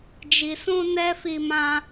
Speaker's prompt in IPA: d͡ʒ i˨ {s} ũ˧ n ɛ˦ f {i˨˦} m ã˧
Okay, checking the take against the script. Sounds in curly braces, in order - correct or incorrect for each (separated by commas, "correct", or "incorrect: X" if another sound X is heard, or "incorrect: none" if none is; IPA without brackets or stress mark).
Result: correct, incorrect: i˧